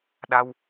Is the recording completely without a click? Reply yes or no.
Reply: yes